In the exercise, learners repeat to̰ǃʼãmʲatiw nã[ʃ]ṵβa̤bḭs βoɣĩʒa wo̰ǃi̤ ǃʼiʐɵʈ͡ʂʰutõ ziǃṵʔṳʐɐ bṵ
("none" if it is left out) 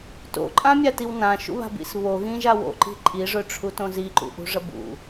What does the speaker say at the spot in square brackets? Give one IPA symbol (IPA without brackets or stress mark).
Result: ʃ